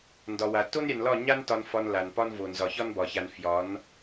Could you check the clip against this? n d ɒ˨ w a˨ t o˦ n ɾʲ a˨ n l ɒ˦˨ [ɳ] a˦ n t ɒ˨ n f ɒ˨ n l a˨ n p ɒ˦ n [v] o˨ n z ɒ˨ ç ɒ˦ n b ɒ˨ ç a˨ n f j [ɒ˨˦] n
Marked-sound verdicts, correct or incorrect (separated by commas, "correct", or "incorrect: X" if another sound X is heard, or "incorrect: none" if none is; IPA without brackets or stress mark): incorrect: ɲ, correct, correct